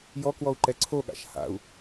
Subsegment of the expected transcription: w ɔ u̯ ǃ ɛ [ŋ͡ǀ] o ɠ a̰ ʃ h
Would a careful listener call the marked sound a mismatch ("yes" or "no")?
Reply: yes